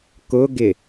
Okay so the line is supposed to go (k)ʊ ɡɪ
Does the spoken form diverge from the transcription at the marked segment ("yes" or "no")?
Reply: no